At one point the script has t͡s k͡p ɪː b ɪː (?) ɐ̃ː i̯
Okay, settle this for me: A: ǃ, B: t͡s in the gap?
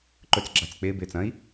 B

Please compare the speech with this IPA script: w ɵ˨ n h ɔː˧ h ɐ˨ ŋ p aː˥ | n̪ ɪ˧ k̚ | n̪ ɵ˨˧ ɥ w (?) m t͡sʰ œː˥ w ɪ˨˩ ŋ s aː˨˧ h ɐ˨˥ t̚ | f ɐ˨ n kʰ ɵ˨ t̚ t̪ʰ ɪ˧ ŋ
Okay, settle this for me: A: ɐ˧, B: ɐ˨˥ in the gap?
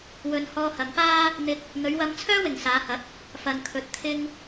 A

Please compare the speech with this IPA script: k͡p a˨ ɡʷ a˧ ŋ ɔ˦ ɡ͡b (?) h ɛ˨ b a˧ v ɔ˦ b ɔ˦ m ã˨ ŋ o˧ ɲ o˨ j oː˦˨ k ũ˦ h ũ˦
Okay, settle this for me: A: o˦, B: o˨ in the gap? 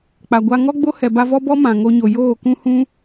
A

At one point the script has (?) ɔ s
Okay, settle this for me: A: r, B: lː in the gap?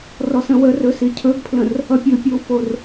A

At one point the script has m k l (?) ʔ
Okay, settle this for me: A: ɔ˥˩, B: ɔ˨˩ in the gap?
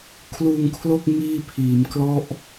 A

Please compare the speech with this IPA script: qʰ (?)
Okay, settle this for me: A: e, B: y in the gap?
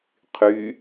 B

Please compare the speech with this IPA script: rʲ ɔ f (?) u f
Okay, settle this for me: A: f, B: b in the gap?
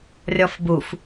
B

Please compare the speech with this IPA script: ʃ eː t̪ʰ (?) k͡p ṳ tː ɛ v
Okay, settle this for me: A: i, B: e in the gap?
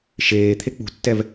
B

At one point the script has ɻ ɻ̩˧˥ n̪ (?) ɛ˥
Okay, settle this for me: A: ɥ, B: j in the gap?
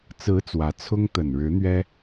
A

